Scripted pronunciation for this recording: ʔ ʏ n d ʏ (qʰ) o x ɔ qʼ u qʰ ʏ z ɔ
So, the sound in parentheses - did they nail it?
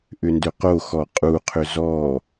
no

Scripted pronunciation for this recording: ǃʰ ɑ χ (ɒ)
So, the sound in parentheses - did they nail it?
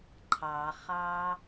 no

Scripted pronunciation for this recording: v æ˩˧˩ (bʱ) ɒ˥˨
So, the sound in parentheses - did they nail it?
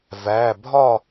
yes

